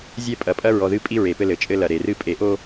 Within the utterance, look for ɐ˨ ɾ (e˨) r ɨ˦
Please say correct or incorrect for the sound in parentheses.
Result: correct